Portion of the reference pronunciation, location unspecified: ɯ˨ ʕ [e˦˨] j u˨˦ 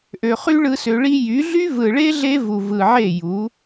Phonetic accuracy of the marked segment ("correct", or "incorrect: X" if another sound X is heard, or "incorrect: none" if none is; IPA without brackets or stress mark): correct